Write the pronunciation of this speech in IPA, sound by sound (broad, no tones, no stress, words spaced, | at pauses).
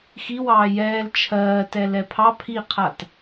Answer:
xiwɑː jɛːl t͡ʃʰɜːtɛ lɛpʰɑ pʰiqʰat